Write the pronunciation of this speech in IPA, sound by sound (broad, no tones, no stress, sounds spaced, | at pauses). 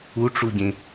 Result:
u ʈ͡ʂ u ɟ ẽ